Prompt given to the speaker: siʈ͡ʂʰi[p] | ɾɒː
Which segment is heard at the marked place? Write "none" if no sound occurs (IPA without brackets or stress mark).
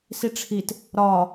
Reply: t